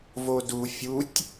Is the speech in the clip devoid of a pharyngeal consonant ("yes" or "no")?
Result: yes